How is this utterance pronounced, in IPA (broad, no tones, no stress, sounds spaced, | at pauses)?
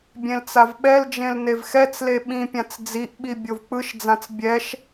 bʲ ẽ l t͡s a v ɓ ɛ l d͡ʒ ẽ l n e v x ɛ t͡s l e ɓ ĩ pʲ ã t͡s d͡z i ʔ ɓ i bʲ o v k͡p ɯ ʃ d͡z ã t͡s bʲ ɛ ʃ